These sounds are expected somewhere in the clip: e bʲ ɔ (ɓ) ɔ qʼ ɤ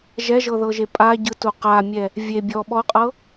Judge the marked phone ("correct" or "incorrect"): correct